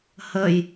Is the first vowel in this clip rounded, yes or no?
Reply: no